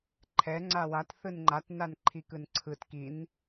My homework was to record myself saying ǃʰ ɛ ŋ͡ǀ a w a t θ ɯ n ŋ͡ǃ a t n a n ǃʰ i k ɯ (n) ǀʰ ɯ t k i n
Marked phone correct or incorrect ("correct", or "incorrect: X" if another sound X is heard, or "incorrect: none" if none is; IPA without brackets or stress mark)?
correct